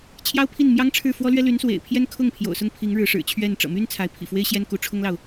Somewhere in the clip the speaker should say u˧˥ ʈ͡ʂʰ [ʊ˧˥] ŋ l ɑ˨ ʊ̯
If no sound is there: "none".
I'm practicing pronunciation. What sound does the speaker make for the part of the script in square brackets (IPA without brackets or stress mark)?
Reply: ʊ˥